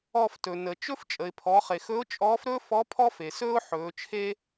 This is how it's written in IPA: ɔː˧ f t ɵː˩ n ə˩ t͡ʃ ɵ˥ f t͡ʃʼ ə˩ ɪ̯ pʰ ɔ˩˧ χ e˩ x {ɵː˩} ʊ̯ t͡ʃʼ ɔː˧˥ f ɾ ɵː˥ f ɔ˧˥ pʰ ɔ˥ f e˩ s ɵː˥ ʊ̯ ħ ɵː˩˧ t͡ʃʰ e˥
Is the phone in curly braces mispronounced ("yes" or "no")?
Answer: yes